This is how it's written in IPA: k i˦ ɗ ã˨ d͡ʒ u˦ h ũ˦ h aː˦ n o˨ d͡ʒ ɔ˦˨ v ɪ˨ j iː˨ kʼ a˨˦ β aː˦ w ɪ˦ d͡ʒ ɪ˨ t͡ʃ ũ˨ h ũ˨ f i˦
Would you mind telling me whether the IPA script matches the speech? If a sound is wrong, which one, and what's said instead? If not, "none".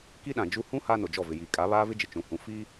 w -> v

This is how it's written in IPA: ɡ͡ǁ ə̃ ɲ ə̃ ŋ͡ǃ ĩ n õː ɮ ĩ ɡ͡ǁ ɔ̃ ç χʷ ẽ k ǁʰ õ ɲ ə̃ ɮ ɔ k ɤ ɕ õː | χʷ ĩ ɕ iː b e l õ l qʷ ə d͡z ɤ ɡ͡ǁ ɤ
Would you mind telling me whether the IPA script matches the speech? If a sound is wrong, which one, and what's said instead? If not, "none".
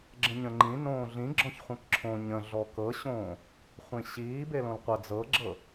none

